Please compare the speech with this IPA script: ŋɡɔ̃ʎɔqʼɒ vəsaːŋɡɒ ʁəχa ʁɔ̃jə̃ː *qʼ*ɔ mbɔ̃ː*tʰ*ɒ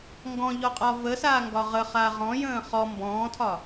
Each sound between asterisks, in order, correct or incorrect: incorrect: χ, correct

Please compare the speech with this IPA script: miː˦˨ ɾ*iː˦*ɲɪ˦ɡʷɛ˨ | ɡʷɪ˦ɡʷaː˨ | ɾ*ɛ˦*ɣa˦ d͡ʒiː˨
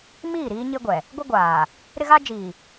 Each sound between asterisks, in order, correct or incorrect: correct, incorrect: ɪ˦

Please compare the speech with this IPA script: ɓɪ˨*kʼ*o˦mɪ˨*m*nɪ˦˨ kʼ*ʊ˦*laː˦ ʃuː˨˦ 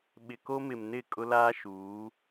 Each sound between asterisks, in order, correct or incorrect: incorrect: k, correct, correct

